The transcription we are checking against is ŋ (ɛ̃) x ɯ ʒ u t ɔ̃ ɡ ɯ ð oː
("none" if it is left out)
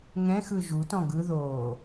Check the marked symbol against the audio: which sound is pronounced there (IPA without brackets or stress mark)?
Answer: ɛ̃